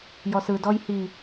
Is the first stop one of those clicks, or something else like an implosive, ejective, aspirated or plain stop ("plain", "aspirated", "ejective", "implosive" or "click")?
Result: plain